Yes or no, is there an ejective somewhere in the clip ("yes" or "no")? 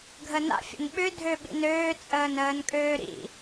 yes